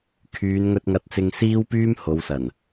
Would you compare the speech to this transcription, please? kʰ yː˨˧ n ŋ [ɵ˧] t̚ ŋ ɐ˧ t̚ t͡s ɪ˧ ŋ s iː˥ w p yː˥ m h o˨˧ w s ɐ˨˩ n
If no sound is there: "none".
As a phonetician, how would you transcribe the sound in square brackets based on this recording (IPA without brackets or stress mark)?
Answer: ɵ˧